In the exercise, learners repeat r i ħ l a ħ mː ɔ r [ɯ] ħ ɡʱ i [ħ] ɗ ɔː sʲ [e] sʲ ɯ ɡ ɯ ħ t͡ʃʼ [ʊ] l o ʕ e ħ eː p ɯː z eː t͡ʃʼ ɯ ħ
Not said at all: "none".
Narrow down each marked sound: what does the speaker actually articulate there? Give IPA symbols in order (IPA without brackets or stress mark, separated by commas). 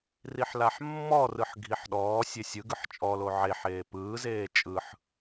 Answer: ɯ, ħ, e, ɔ